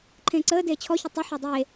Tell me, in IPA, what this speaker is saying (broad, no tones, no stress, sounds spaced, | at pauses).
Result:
ǃʰ ẽː ǀ əː d eː t͡ɕʰ ɔ ç ə tˤ ə ħ ɔ dˤ eː